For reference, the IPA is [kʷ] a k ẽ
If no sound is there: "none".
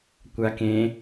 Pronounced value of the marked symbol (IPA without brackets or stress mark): kʷ